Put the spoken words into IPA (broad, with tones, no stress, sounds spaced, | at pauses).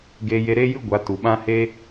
ɡ eː˧ j e˧ ɾ eː˦ j ɨ˦ ɡʷ a˨˦ t u˨ ɓ ã˦ h e˧